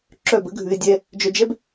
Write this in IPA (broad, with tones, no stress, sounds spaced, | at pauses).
ǁ œ˦˨ b ə˦ ɡʱ ʉ˧ ɪ̯ dʲ ɛ˧ | d͡ʒ œ˧ d͡ʒ ɛ˦ b